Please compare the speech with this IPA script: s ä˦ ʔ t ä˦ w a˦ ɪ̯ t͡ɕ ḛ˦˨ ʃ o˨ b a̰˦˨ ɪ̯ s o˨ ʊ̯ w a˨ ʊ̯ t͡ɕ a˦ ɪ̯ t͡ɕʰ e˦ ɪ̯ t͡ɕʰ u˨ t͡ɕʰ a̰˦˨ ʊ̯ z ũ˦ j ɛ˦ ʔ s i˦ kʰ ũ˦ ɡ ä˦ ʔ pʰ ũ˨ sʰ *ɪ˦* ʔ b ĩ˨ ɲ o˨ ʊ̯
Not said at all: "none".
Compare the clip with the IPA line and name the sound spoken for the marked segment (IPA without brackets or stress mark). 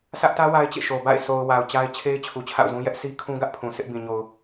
ɪ˦